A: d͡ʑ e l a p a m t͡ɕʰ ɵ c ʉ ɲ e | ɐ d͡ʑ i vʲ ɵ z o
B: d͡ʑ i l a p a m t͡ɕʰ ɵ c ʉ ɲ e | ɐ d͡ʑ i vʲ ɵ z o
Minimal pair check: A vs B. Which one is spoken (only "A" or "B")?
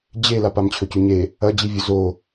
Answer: A